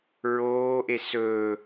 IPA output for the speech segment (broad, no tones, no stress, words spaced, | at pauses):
ɹoːʔe sɵ